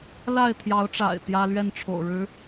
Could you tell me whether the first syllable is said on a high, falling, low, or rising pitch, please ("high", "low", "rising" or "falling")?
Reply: falling